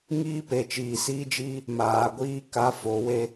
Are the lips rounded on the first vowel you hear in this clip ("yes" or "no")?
no